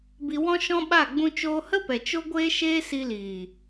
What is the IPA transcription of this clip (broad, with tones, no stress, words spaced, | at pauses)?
bi˧wɔ̃˦ʃɔ̃˦ɓa˦˨ ɡ͡bũ˧t͡ʃoː˧hə˦pɛ˨ t͡ʃo˦ɡʷeː˦ʃeː˦ si˧liː˨